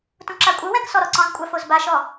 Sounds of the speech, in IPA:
t ũ ǁ a kʷʼ ɯ w ɛ̃ k s ɔ ɾ ɔ ǀ ɔ̃ z kʷʼ a f o z b a ʃ ɔ

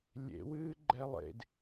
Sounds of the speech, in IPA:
lʲ ḛ w ɨː ɡ͡ǃ ɛ lˠ ḛ d

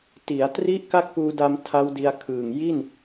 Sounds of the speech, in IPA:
t i˩˦ a̯ t r i˦˥ ʔ k a˥˩ k̚ p uː˧ d a˧ m tʰ a˦˥ w d i˧ a̯ kʰ ɯː˨˩ ŋ j i˥˩ n

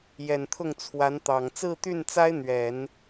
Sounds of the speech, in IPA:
j ɛ˨˩ n t̪ʰ ʊ˥˩ ŋ t͡sʰ w a˧˥ n t̪ ɑ˨˩ ŋ t͡s ɹ̩˥˧ t̪ y˥˩ n t͡s a˥ ɪ̯ n̪ ɥ ɛ˨˩˦ n

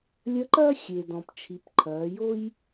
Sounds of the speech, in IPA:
lʲ ɐ˧˥ ǃ ɐː˥ xʲ e˩ d ɔ̃˩ p t͡ʃʰ i˩˧ p ǃʰ ɐː˩˧ j o˥ j

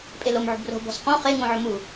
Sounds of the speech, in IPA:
pʼ e l o m ʕ ṳ b r o̤ b ɔ̤ s q õ χ e ŋ õ ʕ ʊ m u

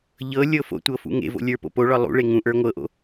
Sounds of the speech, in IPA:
ʎ ɤ lʲ ɤ f o̰ tʷ ɤ f ṵ ŋ ḛ v o̰ lʲ ə˞ p o̰ p o ɭ ɒ lˠ ṵ ɭ e ŋ ũ ʔ ə˞ ŋʷ ɤ ʔ o̰

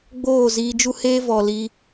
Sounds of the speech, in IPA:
ɡ͡b oː˦˨ z iː˧ d͡ʒ u˦ h eː˦ v ɔ˨ l i˧

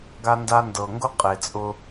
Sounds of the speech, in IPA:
ɡ a˦ n d a˦ n d ɤ˨ ŋ ɡ ʊ˦ qʼ e˨ t͡sʼ ʊ˦

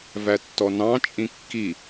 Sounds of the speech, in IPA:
v æ tː ɔ n ɑ̃ t͡ʃʼ ĩ kː i

